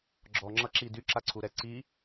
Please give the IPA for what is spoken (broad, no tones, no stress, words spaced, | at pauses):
ɡ͡ǁɔŋ͡ǁʌǁi dyǁaǀʰuɾɛ ǀi